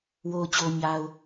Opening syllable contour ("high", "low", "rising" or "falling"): low